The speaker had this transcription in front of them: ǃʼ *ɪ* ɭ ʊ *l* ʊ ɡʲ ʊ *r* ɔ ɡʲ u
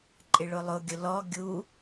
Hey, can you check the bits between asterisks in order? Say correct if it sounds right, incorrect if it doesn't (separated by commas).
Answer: correct, incorrect, incorrect